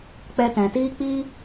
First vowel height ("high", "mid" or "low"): mid